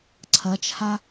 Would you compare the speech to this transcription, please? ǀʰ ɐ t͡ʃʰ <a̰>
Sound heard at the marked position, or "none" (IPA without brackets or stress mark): a